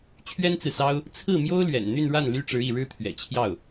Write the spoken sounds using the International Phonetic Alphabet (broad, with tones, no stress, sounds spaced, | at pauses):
t͡ɕʰ ɥ ɛ˥ n t͡s ɹ̩˨ s ɑ˥ ʊ̯ | t͡sʰ ɹ̩˥˩ m j o˥ ʊ̯ l ɥ ɛ̰˨˩ n n̪ y˥˧ n ɻ a˥˩ n l y˥ ʈ͡ʂ ɻ̩˧˥ i˥˩ ɻ ɻ̩˥ t̪ʰ ɥ ɛ̰˨˩ t͡ɕʰ j ɑ˥˩ ʊ̯